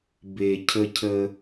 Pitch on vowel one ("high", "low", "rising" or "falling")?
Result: low